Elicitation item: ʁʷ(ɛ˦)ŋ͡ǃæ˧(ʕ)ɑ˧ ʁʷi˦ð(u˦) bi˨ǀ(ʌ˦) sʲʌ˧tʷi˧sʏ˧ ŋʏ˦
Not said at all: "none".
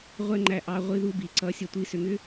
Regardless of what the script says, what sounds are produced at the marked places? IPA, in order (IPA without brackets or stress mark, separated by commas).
ɛ˦, ʔ, u˦, ʌ˦